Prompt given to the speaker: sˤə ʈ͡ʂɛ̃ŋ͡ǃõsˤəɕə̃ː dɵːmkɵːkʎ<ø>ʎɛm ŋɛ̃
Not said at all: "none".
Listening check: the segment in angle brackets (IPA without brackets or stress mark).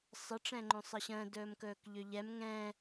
ø